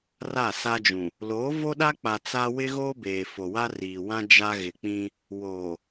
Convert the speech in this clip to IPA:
ra˦˨sa˦d͡ʒũ˨ | lo˨˦ vo˦ɗa˦k͡pa˨ t͡sa˦ wɪ˦ɣoː˦beː˨ fo˨wa˦riː˨wã˦ d͡ʒa˦ɣɪ˨k͡pĩ˦ | woː˨

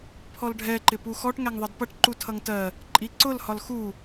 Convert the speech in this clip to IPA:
pʰɔlɖʱɛǃɪpu xɔʈ ŋæŋðˤʌdpʌʈ ǃutʰʌŋtɜ | ǃʼiǀʊl hɒlxu

